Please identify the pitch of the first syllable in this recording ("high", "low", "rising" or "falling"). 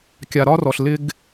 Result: low